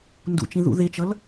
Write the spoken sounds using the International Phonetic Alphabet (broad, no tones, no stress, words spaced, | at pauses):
ndṵt͡ʃĩ ðṵðet͡ʃʌl